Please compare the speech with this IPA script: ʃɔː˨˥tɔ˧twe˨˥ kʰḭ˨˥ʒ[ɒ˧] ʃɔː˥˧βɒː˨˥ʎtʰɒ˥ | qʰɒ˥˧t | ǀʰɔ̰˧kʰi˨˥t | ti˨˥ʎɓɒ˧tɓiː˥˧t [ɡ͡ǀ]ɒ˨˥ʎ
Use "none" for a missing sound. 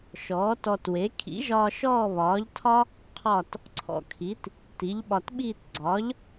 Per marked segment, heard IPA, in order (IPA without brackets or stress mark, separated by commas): ɒː˧, ɡ͡ǀ